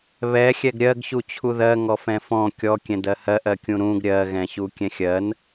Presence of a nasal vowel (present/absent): present